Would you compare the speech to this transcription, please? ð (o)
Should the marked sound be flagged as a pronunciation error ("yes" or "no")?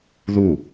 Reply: yes